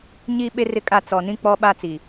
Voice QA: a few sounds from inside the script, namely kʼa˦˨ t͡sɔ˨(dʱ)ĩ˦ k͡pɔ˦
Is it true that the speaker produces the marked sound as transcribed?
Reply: no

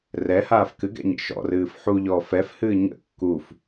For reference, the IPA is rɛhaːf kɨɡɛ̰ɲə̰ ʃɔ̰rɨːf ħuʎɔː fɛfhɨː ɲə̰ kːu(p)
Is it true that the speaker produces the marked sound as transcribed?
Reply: no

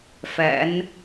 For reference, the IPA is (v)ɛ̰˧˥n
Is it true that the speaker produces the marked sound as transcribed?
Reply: no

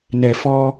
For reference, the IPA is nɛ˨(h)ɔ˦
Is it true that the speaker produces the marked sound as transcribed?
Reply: no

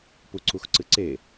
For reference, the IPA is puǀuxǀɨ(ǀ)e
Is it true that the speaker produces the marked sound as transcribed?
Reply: yes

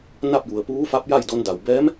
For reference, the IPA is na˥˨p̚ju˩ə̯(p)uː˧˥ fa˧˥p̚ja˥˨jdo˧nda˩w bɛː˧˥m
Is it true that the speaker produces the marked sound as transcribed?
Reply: yes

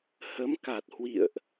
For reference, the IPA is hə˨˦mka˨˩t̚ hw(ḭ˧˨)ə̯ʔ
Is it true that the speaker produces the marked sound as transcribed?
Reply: yes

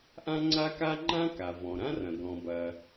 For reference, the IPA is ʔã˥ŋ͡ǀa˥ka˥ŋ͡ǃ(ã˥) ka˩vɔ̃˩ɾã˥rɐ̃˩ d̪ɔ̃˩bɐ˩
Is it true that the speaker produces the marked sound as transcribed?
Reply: yes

